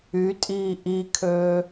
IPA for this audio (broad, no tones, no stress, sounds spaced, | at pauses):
y tʼ iː ʔ i kʰ øː